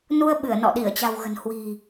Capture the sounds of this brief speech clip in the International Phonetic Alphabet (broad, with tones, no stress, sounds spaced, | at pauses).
n u˧ ə̯ ɓ ɨ˧˩ ə̯ n ɔ̰˧˨ ɗ i˧˩ ə̯ t͡ɕ a̤˨˩ w ɣ ə̤˨˩ n h w i̤˨˩